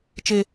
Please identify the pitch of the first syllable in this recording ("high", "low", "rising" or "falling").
high